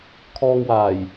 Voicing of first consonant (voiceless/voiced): voiceless